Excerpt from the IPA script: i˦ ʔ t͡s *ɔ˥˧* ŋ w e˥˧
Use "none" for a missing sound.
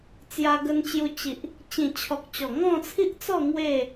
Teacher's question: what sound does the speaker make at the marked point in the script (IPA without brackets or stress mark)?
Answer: ɔ˥˧